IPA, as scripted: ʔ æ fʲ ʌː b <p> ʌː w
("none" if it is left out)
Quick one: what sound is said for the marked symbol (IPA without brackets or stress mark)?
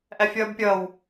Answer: pʲ